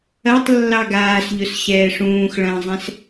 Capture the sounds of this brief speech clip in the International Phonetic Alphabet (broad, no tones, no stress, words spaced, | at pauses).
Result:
ɐtˤ lːɑɡaːsʎʊs ɕɛːʂũːxɭɐ̃ːzˤɛ̃s